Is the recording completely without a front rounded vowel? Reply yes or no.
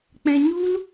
yes